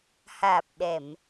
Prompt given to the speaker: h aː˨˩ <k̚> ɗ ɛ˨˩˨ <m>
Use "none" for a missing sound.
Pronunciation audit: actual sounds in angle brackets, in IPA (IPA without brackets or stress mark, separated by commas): p̚, m